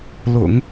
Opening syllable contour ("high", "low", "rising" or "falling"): low